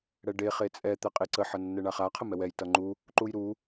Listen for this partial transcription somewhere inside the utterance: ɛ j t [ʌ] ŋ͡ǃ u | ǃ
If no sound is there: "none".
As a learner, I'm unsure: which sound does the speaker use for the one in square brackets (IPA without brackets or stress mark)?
ʌ